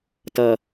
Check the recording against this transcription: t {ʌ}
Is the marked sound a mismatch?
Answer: no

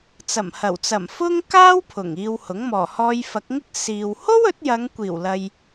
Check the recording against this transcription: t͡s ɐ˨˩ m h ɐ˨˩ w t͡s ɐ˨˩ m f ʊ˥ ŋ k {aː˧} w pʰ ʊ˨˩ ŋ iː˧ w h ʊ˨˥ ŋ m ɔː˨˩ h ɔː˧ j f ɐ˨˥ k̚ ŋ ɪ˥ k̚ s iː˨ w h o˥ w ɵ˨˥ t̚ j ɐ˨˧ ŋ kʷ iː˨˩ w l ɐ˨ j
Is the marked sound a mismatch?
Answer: yes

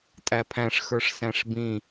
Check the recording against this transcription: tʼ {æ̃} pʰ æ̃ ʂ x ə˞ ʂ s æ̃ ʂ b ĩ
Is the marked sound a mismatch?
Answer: yes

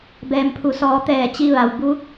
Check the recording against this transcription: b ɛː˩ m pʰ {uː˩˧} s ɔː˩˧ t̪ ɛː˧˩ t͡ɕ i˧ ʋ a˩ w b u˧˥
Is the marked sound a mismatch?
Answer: yes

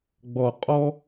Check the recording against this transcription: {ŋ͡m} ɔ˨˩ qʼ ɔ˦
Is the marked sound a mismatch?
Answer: yes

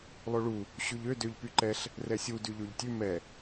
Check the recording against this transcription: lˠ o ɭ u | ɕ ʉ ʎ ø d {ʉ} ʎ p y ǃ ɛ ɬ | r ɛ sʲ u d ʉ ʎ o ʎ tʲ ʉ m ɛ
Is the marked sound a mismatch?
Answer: yes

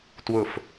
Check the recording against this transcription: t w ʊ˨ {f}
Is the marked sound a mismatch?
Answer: no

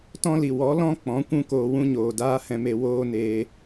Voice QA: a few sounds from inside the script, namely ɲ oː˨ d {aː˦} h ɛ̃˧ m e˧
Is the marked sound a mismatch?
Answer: no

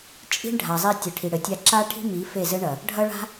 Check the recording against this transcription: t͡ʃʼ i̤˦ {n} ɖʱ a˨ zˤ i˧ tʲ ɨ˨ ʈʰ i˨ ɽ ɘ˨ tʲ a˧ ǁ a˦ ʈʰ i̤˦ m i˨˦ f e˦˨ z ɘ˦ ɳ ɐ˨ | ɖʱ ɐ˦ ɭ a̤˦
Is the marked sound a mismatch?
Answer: yes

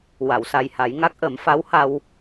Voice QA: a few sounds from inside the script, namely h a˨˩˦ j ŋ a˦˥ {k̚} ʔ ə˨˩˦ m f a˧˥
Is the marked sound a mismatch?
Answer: no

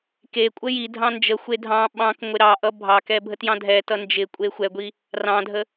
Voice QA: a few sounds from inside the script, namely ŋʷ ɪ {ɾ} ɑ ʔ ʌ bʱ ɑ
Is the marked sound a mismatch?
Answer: no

